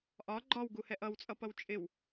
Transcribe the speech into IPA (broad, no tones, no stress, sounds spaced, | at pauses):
ʔ ɒ ɡ͡ǃ ɒ w ɡ u h ɛ ʔ ʌ w t͡sʼ ʌ p ʌ w t͡ʃʼ ɪ w